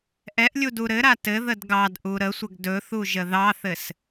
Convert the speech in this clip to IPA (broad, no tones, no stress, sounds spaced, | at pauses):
ʔ ɛ ʔ lʲ u d u ɾ ɘ ɾ a t ɘ ð ə d ɡ ɑ d ʔ u ɾ ə sʷ ə ɡ d ɵ θ u ʒ ə ð ɑ θ ɘ s